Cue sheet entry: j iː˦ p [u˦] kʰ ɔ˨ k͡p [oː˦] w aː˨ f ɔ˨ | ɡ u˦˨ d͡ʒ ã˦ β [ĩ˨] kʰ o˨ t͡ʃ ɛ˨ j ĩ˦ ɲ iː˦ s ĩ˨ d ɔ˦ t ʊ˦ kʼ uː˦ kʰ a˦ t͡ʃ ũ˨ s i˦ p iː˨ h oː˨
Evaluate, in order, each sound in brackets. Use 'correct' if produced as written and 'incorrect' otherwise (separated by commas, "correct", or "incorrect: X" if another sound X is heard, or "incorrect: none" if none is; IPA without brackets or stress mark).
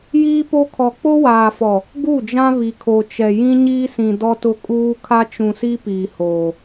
incorrect: o˦, incorrect: o˦, incorrect: i˨